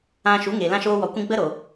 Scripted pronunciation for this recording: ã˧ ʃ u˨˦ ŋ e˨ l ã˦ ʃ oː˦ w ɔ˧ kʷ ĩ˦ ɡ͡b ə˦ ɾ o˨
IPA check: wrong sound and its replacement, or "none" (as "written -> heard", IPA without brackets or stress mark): none